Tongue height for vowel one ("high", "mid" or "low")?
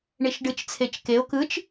high